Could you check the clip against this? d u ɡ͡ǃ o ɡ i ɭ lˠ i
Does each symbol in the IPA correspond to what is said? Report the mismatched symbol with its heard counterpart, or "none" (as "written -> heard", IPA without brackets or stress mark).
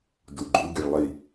o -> u